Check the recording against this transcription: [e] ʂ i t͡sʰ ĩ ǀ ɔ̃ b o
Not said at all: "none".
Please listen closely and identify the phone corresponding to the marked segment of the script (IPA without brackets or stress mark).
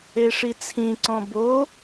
e